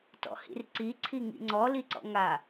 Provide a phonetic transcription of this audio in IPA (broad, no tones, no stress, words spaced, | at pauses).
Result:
tɔ̰hḭrǀi ǀʰiŋḭŋ͡ǀɔ liǀɔ̰ŋa